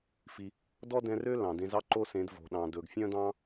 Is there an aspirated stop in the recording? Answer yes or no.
no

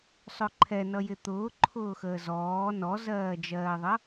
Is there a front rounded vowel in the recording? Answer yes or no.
no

